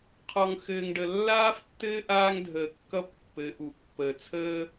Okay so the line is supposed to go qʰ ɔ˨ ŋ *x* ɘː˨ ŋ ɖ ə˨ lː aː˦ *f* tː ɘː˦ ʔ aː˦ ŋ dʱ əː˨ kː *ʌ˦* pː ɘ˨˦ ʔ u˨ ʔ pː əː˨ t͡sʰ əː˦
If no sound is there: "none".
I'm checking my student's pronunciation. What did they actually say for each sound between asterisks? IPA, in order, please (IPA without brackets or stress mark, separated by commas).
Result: x, f, ʌ˦